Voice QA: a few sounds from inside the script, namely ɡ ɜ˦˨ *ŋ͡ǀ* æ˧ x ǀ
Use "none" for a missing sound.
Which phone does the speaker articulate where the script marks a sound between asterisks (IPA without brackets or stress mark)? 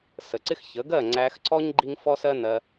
ŋ͡ǀ